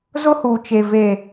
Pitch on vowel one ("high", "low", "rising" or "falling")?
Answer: high